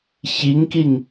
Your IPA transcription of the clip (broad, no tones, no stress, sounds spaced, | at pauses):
ç i ŋ k i ŋ